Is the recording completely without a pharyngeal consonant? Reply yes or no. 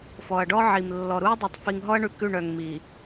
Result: no